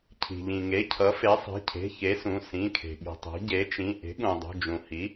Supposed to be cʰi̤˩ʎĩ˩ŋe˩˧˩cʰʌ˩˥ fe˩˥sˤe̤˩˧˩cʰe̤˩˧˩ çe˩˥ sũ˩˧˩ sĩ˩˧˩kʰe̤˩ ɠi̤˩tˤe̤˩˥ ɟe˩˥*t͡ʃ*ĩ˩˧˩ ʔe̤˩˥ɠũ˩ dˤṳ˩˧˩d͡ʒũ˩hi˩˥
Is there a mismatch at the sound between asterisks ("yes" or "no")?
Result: no